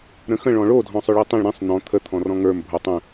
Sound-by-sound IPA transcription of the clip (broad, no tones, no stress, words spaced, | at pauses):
ɾə̃xə̃ ɭɔ̃ɭo dʱɔ̃sˤʏɭitˤĩɭ ɾĩsˤ n̪ɔ̃ t̪ʰə t̪ʰɔ̃rɔ̃ŋə˞m bʱotˤə̃